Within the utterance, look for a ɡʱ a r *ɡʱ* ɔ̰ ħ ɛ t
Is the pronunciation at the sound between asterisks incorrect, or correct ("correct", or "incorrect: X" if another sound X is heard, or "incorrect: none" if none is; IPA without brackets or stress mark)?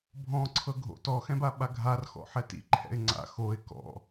incorrect: x